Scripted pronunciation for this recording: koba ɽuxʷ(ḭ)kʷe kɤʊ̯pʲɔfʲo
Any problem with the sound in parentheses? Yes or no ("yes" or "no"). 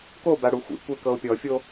no